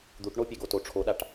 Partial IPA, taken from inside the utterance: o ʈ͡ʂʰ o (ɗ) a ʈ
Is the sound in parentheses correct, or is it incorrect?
correct